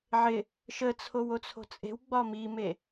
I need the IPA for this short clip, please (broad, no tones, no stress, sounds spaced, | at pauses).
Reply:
ʕ ɪ | ʃ ə t͡sʰ o w o t͡sʰ o̤ t͡sʼ e̤ w ɡ͡b ɒ m i m e